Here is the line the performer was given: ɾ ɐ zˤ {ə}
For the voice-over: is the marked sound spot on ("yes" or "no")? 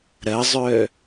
no